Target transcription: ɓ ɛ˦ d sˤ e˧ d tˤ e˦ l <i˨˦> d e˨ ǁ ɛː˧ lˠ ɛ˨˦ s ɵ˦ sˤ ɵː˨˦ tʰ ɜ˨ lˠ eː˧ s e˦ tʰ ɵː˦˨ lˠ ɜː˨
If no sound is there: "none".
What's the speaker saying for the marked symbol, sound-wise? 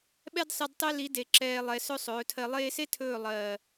i˨˦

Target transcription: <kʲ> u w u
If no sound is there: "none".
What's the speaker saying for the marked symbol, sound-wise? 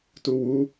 t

